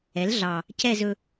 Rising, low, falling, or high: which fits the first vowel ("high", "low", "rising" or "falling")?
rising